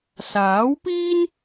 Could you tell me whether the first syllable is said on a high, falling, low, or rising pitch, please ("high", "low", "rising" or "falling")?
rising